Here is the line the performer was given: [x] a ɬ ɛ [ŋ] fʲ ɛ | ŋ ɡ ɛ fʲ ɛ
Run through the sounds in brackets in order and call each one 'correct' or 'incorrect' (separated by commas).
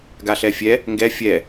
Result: incorrect, incorrect